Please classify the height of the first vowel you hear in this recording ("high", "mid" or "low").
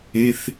mid